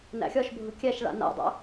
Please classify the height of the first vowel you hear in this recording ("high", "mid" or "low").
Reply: low